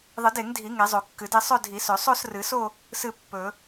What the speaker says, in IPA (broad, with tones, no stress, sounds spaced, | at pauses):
ðˤ ɨ˨˩˦ d e˨˩˦ ŋ dʱ i˨˩˦ ŋ e˨˩˦ zˤ o˨˩˦ kː ɨ˨˩˦ d e˥˧ sˤ ɵ˥˧ dʱ i˨˩˦ s ɵ˨˩˦ sˤ o˥˧ s r ɨ˨˩˦ s o˥˧ | s ɨ˥˧ pː ɵ˨˩˦